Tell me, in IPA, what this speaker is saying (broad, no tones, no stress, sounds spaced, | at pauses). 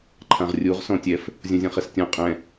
ǃʰ ã ʁ rʲ u ʁ s ɔ̃ tʲ ɛ f | zʲ õ zʲ ɔ̃ χ ɛ s tʲ ɔ̃ qʼ ɛ̃